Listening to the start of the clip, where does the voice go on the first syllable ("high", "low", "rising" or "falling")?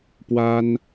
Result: high